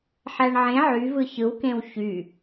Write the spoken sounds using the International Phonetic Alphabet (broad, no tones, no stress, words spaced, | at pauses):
ħæɳʕẽ ʕyvɯ çɯwkẽw çy